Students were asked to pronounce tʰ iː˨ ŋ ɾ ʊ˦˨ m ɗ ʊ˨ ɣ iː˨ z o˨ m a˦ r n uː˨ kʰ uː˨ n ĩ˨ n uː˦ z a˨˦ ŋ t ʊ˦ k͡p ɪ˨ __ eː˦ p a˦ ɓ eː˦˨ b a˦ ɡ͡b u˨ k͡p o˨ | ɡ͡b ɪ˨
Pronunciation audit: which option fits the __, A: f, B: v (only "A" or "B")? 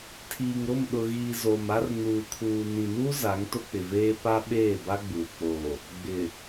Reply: B